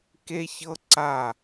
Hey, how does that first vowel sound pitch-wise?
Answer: high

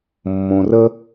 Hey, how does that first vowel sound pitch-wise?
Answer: low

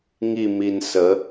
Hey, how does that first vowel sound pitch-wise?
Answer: falling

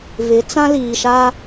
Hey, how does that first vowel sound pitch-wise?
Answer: rising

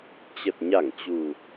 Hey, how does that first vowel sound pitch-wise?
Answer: low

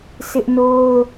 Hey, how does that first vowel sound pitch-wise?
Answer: high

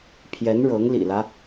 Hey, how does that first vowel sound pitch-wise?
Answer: rising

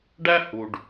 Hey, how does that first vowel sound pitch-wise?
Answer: high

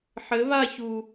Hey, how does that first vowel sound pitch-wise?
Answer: rising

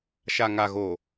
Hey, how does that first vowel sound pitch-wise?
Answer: low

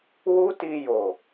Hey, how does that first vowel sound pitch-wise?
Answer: high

